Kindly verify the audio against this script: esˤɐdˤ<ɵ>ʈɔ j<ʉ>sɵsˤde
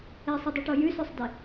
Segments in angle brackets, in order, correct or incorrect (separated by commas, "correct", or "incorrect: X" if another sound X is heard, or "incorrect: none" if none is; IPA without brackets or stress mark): correct, correct